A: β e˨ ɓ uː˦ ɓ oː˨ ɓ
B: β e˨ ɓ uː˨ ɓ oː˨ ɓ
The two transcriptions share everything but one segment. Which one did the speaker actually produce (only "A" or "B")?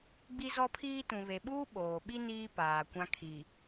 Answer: A